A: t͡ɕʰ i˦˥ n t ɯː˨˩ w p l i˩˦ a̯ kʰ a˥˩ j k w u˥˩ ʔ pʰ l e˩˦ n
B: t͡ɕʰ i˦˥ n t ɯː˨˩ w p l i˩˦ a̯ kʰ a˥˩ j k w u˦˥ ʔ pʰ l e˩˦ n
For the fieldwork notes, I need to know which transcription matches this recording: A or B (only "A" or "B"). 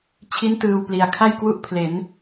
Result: A